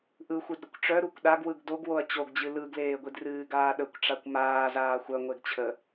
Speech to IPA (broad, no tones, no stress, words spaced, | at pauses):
ʔɯ xʷɨdɾəkʷʈ͡ʂœ ɾukʷɗaɡwɯɡ doɡwoɐ̯ t͡ɕoɡd͡ʑɨ lɯɡleːɡʷidrɨː ɡaːɗəkʷ ʈ͡ʂakʷmaː zaːxʷœŋʷeɡ t͡ɕʰə